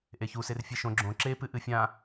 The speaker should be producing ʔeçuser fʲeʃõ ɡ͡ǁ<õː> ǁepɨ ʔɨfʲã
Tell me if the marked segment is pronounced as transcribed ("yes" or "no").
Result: no